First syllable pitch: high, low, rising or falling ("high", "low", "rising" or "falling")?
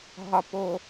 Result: low